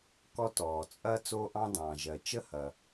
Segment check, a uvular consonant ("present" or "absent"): absent